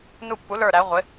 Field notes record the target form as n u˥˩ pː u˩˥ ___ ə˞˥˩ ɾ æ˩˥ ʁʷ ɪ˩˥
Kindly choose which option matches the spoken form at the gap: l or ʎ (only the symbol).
l